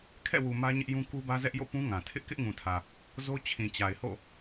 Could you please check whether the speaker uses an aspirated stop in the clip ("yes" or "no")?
yes